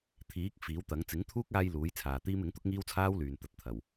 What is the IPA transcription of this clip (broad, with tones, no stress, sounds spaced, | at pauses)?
t̪ʰ iː˨˥ k̚ f iː˨˥ w t̪ ɐ˨˥ ŋ t͡s ɪ˨˥ ŋ t̪ʰ uː˥ k̚ aː˧ j l uː˨˥ j t͡sʰ aː˨ t̪ iː˥ m ɪ˨˥ ŋ t̪ ʊ˥ k̚ ŋ iː˥ w t͡sʰ aː˥ w l yː˨ n t̪ ɐ˨˥ t̚ t̪ʰ ɐ˨˩ w